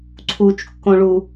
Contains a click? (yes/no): yes